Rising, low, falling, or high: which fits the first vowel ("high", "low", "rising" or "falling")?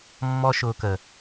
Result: high